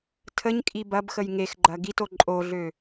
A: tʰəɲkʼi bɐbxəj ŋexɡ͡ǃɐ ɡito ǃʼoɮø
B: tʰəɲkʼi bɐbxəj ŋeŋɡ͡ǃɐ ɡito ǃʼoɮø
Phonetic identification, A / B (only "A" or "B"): A